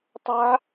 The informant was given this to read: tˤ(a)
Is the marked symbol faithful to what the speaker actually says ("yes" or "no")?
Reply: no